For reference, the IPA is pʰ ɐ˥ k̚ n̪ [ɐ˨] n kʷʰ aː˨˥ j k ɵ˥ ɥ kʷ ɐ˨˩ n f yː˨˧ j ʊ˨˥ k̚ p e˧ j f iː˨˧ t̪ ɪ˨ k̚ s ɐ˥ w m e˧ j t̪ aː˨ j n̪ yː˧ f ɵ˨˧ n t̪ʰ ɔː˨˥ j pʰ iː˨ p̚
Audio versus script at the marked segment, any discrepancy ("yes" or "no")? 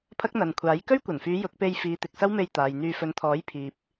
no